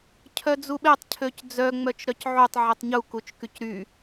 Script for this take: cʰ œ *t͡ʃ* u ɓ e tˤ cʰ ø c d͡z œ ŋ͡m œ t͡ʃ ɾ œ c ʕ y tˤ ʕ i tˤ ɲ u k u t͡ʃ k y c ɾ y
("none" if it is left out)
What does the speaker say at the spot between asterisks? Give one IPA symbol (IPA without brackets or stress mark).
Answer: d͡z